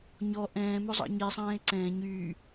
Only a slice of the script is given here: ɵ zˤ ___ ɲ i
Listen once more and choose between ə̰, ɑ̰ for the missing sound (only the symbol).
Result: ɑ̰